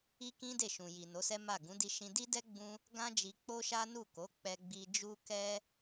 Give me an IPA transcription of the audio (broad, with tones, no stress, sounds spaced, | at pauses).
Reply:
i˦ k ĩ˦ d e˦˨ ʃ ũ˨ j i˨ n o˨˦ s ɛ˦ m a˦˨ ɡ ũ˨˦ d i˧ ʃ ĩ˧ d i˦ d ɛ˦ ɡ͡b ũ˦ | ɡ ã˦ d͡ʒ i˧ k͡p o˦ ʃ a˦ n u˦˨ k o˨˦ k͡p ɛ˧ ɡ͡b i˧ d͡ʒ u˦ k ɛ˦